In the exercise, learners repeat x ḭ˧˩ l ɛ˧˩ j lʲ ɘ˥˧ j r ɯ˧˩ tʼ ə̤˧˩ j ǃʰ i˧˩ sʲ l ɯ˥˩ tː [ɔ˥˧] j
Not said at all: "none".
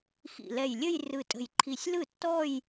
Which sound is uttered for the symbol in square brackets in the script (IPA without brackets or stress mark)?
ɔ˥˧